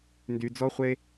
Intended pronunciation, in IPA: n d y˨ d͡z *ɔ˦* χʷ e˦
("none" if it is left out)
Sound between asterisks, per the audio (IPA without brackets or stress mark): ɔ˦